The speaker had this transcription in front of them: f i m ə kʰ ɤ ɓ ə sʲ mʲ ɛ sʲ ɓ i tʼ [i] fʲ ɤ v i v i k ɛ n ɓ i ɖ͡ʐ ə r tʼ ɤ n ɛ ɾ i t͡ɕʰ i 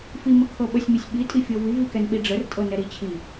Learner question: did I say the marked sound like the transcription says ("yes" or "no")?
yes